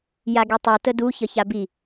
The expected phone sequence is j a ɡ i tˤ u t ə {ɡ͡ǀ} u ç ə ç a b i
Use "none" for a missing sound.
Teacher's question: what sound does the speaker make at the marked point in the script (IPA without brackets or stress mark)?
d